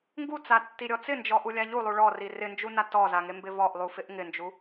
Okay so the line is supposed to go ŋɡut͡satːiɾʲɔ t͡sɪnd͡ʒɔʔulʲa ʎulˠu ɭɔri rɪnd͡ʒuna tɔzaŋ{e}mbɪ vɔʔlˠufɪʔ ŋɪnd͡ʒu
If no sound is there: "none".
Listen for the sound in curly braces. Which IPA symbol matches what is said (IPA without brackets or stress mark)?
e